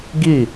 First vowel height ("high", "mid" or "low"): high